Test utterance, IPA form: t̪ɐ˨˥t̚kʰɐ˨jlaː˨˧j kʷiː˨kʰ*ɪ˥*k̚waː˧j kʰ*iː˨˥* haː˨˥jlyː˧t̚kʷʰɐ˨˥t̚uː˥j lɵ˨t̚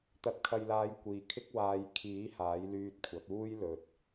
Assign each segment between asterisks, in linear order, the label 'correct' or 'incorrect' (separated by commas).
correct, correct